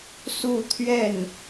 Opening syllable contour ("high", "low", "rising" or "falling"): falling